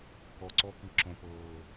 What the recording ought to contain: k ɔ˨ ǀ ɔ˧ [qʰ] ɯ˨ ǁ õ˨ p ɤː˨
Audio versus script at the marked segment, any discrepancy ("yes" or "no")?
yes